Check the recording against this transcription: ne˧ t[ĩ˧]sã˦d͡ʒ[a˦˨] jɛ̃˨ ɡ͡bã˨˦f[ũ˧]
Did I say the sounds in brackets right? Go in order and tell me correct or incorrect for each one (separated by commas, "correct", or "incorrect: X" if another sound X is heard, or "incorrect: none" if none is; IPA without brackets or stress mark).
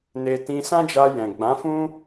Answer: correct, incorrect: a˧, incorrect: ũ˦